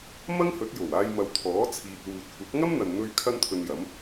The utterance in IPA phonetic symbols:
m ɐ˥ ŋ h ɵ˨˥ t̚ j o˨˩ w aː˧ j m ɐ˨˧ w t̪ʰ ɔː˨˥ t͡sʰ iː˨ t̚ w uː˨ t̚ kʷ ɐ˨˥ p̚ ŋ ɐ˥ m n̪ ɐ˨ n n̪ ɵ˧ ɥ kʰ ɐ˥ n t̪ʰ ɵ˧ n j ɐ˨˥ m

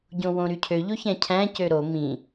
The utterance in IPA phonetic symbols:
ɟ õ w õ ɾ y cʰ ø ʎ o ç æ̃ cʰ æ̃ c ø ɾ o m ĩ

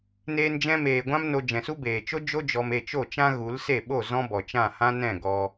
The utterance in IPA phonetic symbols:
n eː˧ n d͡ʒ ɛ̃˧ m eː˨ ɡʷ ã˦ m n o˧ d͡ʒ ɛ̃˨ s u˦ b eː˨ t͡ʃ o˦ d͡ʒ o˦ d͡ʒ ɔ˧ m e˦˨ t͡ʃ o˦˨ t͡ʃ ã˦ ɣ u˨˦ l s e˦˨ ɓ o˦˨ z ɔ̃˦ b ɔ˨ t͡ʃ ã˦˨ h ã˦ n ɛ̃˦˨ ɡ ɔ˧

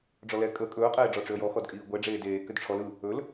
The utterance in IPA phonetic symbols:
ɖ͡ʐ ɔ l ɛ kʼ ə kʼ ɵː qʼ eː ɖ͡ʐ ɔ ʈ͡ʂ ʏ ə̯ j ɔ x ɔ d kʼ iː ɡʷ ɛ ɖ͡ʐ eː d eː k ʏ d ʈ͡ʂʰ ɔ l ɯ | ɵ l

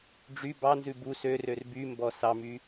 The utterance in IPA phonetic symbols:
ɖ͡ʐ y b ɑ n z ʉ b u s ø r ø r b y m b ɔ s ɑ m y

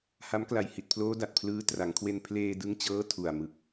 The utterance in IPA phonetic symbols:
h a˦˥ m k l a˨˩ j h i˨˩ t̚ pʰ l oː˦˥ d a˨˩ t̚ pʰ l ɯː˦˥ t r a˩˦ ŋ kʰ w e˧ n pʰ l eː˧ d ɯ˦˥ ŋ t͡ɕ ɤː˦˥ tʰ u˨˩ a̯ m ɯ˨˩ k̚

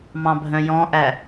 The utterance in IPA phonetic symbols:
m ɑ̃ bʱ œ̃ j ɔ̃ ʔ æ

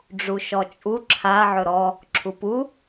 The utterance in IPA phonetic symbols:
ɖ͡ʐ u ʃ ɔ t͡ʃʼ u ǁʰ a ʕ ɵ ɾ ɔ | ǁʰ u p u

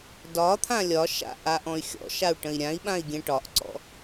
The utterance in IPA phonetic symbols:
d ɒ t̪ʰ ã lʲ ɒ ʃ a̰ ʔ a ʔ ɔ̃ y̯ xʲ ɔ̰ ʃ a u̯ ʈ ə̃ i̯ ɾʲ ã i̯ ɓ ã i̯ ɡʲ ɛ̃ ʈ ɒ ʔ ǀ ɔ̰

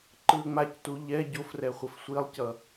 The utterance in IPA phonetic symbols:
ǃ ɯ ə̯ ŋ͡m a c t u ʎ ɛ ɟ o f r ɛ χʷ ʌ f sʷ i lˠ c ʌ

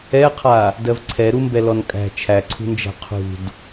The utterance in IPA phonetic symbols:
ɛ qʰ a | d ɜ v ǀʰ ɛ ɾ u m b ɛ l ɔ n kʼ æ̤ t͡ʃʰ æ ǀʰ ṳ n d͡ʒ æ̤ qʰ ṳ d

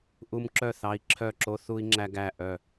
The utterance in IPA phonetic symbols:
ʔ u˧ m ǁ œ˦˨ θ ɑ˧ i̯ ǁʰ œ˦˨ ǁ o˦ θ u˦ i̯ ŋ͡ǁ æ˦ ɡ æ˦˨ ʔ œ˦˨

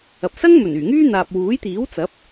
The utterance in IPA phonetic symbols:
ɐ˨ p̚ s ɐ˥ ŋ m ɵ˨˩ n yː˨˩ ŋ yː˥ n̪ aː˨ p̚ w uː˨˥ j t̪ iː˨˥ w t͡s ɐ˨˥ p̚

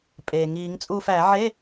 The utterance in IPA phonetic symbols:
pʼ eː˩ ŋ iː˨˩˦ ŋ t͡sʼ uː˦˨ f æ˨˩˦ ʕ e˧˥˧

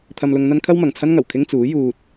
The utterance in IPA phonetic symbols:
t̪ʰ ɐ˧ m l ʊ˧ ŋ n̪ ɐ˥ n kʰ ɐ˥ w m ɐ˨ ŋ t͡sʰ ɐ˥ n ŋ ɐ˨˩ w kʰ ɪ˥ ŋ t͡s uː˨˥ j uː˧ t̚

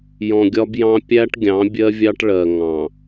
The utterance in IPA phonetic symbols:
j ɔ̃˨ ɡʲ ɒ˦ b j ɑ̃˦ pʲ æ˦ ʈ ɡʲ ɑ̃˨˦ bʲ ɜ˦ vʲ ɑ˦ ʈ ɭ ɜ˨ ŋ ɑ̃˨

